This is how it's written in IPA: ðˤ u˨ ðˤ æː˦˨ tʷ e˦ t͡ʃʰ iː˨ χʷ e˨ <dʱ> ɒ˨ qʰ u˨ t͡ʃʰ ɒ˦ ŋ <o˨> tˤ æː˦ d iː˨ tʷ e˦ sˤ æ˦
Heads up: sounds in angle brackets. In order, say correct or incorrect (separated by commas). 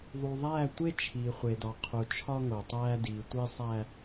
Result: incorrect, correct